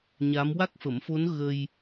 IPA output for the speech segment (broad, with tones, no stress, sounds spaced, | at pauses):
ɲ a˧˥ m w a˦˥ k̚ f ə˨˩˦ m f o˧˥ n ɣ ə˧ j